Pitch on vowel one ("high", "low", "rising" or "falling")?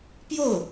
falling